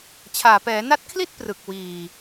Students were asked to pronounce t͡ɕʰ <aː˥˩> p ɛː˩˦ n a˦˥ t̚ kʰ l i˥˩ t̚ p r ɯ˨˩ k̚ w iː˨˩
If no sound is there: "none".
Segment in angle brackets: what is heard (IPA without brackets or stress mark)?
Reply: aː˨˩